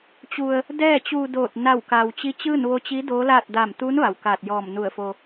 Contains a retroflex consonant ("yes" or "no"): no